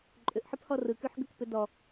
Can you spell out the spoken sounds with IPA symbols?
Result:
ǃʼ ʏ ʔ ħ ɯ p h ɔ r ɯ k y ħ ɡ ə k p ʏ d ɔ

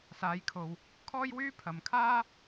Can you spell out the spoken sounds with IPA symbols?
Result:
s aː˨˧ j kʰ o˨ w | kʰ ɔː˥ j w yː˥ pʰ ɐ˨ m kʰ aː˥

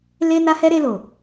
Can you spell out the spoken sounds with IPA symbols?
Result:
l e˦ n a˦ h ɛ˦ ɾ e˧ l o˨

